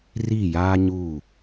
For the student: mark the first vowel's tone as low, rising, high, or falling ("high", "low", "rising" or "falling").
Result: falling